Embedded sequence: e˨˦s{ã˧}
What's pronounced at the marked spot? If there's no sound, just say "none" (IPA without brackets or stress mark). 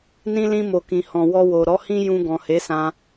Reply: ã˧